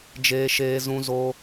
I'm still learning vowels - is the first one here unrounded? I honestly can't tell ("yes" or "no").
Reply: yes